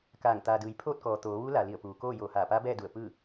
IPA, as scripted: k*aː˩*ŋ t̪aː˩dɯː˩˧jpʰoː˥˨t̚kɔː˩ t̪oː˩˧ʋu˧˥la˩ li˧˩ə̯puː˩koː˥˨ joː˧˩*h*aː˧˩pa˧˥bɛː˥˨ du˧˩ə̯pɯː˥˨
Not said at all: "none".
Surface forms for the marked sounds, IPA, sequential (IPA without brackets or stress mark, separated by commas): aː˧˩, h